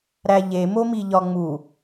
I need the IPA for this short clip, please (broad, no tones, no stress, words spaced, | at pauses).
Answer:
ɾæʎemomi ʎɒŋ͡mu